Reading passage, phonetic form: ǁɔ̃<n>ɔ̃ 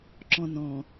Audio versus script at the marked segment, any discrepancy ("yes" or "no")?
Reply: no